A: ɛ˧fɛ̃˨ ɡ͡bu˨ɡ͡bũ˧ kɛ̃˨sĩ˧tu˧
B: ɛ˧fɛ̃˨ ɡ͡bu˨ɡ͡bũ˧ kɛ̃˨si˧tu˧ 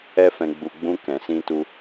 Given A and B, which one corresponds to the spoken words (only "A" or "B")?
A